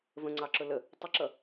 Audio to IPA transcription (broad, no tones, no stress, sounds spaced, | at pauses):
v ə̃ ŋ͡ǀ ɑ ǁ ʊ l ə | tˤ ə ǁ ʌ